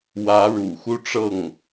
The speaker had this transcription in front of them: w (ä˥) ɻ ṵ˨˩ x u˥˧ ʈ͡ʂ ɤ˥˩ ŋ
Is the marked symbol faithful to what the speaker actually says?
no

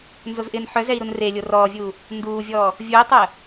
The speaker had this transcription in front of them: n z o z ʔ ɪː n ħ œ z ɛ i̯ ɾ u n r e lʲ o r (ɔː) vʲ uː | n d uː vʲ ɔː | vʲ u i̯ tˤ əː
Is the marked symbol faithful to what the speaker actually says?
yes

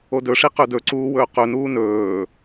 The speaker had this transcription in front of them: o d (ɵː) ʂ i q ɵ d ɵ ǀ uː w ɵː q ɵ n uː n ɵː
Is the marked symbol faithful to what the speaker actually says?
no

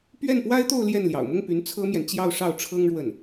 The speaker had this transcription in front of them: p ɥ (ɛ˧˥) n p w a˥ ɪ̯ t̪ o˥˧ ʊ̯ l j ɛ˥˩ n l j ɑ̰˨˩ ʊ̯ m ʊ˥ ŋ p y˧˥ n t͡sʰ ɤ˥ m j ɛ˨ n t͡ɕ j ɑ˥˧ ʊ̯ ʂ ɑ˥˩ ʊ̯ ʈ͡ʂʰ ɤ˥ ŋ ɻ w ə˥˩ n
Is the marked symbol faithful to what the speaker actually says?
no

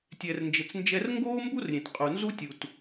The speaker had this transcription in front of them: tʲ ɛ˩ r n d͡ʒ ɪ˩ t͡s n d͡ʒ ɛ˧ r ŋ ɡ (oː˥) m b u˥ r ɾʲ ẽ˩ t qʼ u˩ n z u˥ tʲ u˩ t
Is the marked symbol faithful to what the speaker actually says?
yes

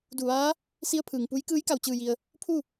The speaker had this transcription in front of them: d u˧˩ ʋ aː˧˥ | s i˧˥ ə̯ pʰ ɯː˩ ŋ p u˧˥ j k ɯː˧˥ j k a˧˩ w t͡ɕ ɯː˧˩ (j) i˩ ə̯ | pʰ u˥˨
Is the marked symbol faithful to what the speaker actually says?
yes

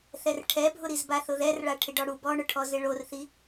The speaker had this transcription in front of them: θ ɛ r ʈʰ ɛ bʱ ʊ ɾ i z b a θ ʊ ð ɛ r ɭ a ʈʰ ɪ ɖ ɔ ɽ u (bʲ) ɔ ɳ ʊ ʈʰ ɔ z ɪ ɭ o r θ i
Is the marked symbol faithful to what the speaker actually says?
no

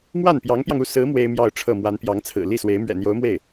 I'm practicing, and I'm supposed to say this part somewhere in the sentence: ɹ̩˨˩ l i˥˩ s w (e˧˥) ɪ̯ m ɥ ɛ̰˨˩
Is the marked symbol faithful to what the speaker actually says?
yes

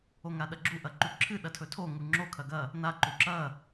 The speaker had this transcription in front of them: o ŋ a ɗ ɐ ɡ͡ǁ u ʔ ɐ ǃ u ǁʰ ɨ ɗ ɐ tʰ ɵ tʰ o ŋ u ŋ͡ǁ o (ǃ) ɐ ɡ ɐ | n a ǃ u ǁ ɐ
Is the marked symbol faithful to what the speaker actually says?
no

